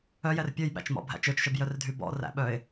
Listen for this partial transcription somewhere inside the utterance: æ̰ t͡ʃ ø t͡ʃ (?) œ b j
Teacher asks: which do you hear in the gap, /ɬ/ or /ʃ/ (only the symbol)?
ʃ